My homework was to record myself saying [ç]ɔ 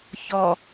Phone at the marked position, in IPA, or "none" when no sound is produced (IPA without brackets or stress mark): ç